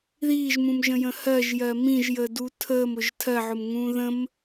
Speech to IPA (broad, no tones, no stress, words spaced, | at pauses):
ðiːʒmũmʒə̃jə̃ hɜʒjɜ mĩʒjədu tʰəːmʊʒ tʰɜʕʊmŋũː ðə̃m